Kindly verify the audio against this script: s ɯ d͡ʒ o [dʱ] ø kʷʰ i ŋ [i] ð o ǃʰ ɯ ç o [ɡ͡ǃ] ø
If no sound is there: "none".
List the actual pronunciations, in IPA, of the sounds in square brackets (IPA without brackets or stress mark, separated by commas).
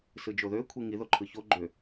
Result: ð, i, ɡ͡ǃ